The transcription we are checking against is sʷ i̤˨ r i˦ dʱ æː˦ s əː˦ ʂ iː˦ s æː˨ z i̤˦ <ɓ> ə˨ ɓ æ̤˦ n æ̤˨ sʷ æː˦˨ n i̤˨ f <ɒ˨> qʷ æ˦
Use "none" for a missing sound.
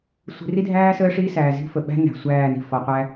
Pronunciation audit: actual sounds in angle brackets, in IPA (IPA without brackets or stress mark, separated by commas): f, ɒ˨